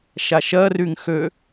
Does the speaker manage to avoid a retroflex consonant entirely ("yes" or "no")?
yes